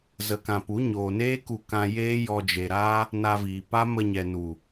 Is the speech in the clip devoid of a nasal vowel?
no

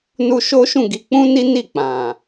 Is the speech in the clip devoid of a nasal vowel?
no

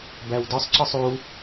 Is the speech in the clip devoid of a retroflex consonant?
yes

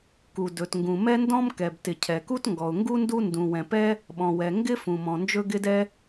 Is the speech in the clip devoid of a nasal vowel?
no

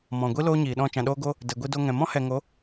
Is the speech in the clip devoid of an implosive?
no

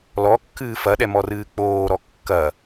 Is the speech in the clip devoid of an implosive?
no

